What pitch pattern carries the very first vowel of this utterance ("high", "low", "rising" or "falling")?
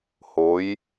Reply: rising